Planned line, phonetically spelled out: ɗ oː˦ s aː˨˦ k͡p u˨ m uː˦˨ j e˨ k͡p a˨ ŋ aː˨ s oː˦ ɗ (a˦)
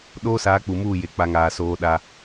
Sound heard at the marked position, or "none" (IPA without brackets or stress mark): a˦